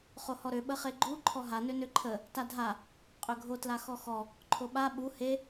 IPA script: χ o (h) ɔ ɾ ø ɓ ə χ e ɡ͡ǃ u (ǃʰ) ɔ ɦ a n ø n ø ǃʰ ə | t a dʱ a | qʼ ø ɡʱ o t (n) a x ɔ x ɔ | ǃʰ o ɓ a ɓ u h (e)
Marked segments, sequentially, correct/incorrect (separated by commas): correct, correct, incorrect, correct